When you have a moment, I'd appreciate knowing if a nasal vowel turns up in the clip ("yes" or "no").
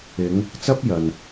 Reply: no